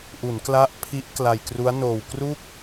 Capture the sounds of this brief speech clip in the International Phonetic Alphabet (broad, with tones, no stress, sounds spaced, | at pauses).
ʔ u˩˦ n k l a˦˥ ʔ pʰ i˦˥ ʔ k l a˧ j k r u˦˥ a̯ n oː˧ w k r u˥˩ k̚